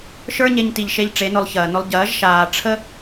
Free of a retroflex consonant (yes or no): no